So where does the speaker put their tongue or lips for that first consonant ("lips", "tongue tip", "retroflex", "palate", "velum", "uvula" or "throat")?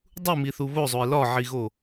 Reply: tongue tip